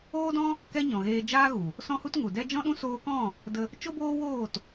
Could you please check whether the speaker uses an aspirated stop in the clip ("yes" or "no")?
no